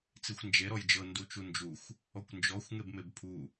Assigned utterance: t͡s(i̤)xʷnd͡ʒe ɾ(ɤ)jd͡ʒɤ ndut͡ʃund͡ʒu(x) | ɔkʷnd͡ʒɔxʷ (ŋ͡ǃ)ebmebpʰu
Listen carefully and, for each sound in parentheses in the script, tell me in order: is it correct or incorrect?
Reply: incorrect, incorrect, incorrect, incorrect

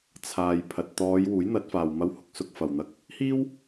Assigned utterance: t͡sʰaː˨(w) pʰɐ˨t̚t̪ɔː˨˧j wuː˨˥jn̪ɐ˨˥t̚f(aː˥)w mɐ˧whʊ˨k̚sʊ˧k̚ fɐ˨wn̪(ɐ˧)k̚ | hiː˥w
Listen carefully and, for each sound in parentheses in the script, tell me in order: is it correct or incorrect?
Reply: incorrect, incorrect, correct

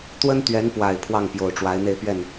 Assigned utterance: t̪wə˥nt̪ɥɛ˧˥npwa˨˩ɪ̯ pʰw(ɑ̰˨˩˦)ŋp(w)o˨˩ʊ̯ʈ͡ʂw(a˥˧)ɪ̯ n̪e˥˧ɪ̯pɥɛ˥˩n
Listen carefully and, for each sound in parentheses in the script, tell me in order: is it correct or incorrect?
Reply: incorrect, incorrect, incorrect

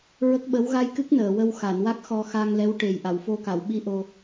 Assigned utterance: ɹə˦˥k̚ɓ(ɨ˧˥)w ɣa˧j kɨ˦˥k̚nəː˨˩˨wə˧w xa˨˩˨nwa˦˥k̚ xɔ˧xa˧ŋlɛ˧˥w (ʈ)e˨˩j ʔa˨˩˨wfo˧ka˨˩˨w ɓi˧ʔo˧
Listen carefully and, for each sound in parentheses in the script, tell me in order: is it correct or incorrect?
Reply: incorrect, correct

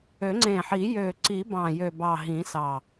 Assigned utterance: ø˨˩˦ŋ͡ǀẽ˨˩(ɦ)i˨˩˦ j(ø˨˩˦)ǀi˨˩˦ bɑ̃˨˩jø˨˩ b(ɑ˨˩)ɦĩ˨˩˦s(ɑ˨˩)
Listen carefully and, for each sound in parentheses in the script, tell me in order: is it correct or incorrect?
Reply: incorrect, incorrect, correct, correct

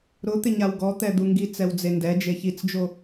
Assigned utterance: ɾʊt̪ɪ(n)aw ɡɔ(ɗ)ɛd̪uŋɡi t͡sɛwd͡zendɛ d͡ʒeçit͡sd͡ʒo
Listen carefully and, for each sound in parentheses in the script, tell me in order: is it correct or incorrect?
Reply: incorrect, incorrect

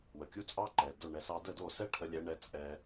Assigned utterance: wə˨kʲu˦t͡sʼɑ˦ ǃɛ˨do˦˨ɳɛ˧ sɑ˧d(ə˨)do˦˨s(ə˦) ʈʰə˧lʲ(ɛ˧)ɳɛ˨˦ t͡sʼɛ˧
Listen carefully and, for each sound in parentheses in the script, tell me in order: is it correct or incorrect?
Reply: incorrect, incorrect, incorrect

